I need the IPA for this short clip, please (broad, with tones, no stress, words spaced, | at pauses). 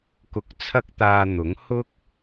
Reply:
kʊ˧k̚t͡sʰɐ˥k̚t̪aː˧n̪ʊ˨˥ŋ hʊ˥k̚